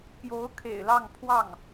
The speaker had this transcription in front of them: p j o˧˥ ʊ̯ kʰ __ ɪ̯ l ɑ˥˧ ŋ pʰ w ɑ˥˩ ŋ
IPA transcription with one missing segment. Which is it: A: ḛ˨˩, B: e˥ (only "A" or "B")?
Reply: A